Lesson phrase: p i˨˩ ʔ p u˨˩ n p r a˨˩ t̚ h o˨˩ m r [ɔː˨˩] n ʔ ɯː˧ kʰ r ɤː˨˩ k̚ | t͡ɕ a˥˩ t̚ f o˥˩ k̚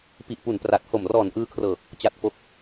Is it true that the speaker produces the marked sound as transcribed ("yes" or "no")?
yes